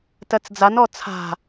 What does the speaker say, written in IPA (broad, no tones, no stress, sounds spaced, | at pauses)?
t ɜ t͡s d͡z a n ɔ t͡sʰ a̤